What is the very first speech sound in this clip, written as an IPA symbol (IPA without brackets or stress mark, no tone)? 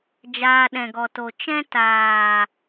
d͡ʒ